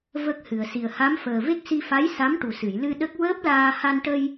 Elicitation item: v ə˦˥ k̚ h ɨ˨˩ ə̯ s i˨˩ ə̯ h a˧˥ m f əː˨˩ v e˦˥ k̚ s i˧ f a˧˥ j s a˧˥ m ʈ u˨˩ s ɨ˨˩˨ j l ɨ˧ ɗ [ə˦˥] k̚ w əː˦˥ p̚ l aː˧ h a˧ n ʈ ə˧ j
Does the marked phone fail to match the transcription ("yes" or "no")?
no